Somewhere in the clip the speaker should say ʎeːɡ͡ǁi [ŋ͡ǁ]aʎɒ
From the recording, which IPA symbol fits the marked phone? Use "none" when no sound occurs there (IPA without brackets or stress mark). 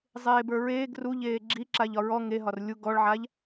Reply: ǁ